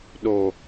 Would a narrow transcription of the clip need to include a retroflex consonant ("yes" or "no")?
no